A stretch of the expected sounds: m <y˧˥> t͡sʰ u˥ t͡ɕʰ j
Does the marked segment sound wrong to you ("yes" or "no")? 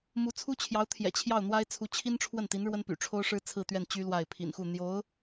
yes